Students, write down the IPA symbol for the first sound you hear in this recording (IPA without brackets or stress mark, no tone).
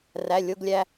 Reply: r